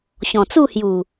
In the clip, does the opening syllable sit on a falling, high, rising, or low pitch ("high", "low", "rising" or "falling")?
low